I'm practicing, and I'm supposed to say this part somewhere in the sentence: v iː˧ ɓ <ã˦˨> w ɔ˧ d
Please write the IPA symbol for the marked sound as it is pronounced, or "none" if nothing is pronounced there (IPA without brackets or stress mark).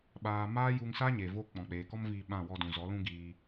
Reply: ã˦˨